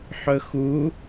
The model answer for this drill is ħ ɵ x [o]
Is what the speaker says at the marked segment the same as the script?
no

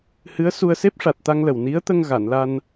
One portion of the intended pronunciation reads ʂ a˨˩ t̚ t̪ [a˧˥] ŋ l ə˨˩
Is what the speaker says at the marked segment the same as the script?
no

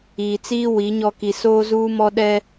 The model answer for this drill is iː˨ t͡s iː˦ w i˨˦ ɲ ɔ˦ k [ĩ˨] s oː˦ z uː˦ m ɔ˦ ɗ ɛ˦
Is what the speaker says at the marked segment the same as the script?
no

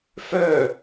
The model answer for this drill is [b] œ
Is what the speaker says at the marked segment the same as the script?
no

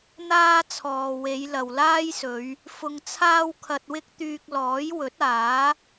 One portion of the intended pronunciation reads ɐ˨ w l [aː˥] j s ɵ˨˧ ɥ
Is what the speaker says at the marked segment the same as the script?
yes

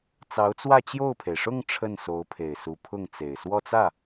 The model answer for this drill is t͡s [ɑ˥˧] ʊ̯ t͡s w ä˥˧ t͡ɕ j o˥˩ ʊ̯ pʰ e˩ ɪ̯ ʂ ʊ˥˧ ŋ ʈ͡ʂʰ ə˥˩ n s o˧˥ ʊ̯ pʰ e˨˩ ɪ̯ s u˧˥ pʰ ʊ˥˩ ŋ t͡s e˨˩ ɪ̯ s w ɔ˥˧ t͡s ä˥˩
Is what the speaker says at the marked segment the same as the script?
no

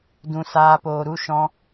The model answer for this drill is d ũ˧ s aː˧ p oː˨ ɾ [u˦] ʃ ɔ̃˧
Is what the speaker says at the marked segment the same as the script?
no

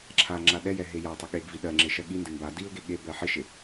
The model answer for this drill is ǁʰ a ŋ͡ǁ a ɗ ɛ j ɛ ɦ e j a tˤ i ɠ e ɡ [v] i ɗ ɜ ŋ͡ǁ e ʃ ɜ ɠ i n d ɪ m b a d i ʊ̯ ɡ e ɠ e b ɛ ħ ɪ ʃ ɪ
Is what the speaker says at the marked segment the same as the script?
yes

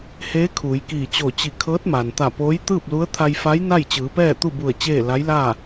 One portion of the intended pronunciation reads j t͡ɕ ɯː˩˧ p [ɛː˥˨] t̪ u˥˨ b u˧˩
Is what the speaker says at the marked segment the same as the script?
yes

